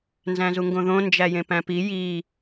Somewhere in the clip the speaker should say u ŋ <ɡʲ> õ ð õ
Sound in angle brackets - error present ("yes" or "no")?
yes